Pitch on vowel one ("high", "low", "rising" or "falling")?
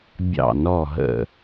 falling